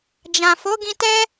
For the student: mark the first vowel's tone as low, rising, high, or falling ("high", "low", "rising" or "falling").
low